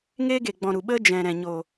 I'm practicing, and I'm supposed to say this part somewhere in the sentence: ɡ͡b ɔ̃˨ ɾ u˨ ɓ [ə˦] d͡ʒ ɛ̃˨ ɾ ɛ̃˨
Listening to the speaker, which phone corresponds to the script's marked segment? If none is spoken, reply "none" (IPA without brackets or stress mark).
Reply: ə˦